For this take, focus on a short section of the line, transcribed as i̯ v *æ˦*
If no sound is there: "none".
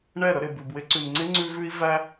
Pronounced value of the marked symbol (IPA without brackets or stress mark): æ˧